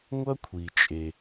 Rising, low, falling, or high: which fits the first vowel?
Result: high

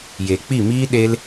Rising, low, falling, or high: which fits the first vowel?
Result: low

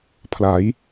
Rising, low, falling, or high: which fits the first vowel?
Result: rising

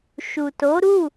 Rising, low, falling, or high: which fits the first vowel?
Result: low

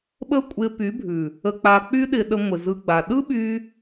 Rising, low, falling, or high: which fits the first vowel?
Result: high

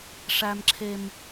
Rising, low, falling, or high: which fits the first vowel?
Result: high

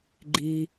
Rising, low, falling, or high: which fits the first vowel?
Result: low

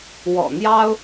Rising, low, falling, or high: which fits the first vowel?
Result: low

